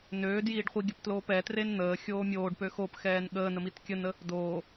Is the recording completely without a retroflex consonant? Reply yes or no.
no